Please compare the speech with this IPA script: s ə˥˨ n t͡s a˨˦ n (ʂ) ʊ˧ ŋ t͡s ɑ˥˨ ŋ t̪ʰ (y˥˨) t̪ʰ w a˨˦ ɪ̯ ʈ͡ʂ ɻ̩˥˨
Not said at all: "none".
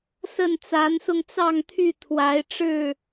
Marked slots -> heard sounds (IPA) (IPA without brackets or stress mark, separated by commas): s, y˥˨